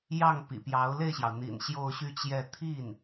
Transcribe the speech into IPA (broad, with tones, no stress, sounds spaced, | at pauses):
j ɑ˥˩ ŋ p ḭ˨˩ p j ɑ˧˥ ʊ̯ l e˥˩ ɪ̯ ɕ j ɑ˩ ʊ̯ n̪ ḭ˨˩ n ɕ j o˥˧ ʊ̯ ɕ y˥˧ t͡ɕ j ɛ˥˧ t̪ʰ i˥˩ n